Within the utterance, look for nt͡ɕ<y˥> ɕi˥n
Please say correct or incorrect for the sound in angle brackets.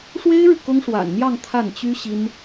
correct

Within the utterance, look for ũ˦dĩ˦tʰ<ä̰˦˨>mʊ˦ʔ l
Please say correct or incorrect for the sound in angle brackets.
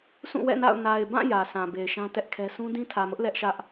incorrect: ä˨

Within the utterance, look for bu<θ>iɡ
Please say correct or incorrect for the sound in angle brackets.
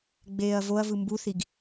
correct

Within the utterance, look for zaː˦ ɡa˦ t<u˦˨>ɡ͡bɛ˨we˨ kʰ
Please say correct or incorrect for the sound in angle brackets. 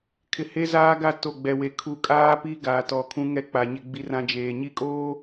incorrect: o˦˨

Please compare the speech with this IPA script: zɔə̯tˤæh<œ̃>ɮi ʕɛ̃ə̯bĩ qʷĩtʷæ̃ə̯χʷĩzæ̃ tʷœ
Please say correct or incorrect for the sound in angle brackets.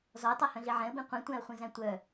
correct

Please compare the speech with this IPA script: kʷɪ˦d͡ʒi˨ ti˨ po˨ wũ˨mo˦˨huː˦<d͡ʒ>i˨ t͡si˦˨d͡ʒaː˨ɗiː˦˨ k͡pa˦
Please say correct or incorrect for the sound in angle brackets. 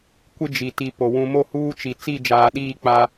incorrect: t͡ʃ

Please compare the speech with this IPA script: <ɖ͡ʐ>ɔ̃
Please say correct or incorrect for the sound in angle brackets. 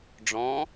correct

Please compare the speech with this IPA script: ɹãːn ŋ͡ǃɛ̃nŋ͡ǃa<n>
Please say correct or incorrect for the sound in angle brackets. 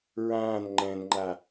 incorrect: none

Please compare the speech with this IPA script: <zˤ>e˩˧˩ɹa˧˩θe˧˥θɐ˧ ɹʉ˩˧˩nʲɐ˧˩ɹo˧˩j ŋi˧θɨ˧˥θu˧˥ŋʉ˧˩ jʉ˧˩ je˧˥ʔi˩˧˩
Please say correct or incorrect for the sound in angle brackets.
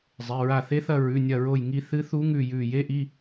correct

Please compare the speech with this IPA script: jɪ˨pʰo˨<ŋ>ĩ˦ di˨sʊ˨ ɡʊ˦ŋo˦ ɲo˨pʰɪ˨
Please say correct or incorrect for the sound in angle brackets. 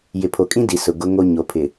incorrect: kʼ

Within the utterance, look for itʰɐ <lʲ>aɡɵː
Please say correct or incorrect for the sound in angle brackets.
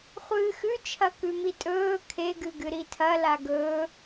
incorrect: l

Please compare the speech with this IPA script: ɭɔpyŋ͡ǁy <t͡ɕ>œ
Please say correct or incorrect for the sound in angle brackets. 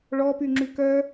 incorrect: k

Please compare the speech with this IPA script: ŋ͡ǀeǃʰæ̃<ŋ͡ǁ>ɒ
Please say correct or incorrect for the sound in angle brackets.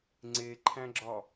incorrect: ɡ͡ǁ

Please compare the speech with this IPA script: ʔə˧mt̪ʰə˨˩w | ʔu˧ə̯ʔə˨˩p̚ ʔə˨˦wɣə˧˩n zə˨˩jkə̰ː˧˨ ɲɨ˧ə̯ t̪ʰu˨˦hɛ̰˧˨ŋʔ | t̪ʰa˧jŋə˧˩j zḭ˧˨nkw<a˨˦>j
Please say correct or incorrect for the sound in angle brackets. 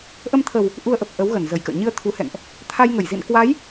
correct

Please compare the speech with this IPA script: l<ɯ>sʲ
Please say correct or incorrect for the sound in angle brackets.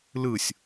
correct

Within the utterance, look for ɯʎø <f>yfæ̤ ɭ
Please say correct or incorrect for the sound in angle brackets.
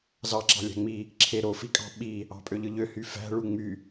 incorrect: h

